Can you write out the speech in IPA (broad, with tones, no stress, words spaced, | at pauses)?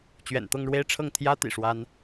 t͡ɕɥɛ̰˨˩nt̪ɤ˥˧ŋɻwe˥˧ɪ̯ʈ͡ʂʰɤ˥˩ŋ t̪ʰjä˥ t̪ḭ˨˩ʂwa˥n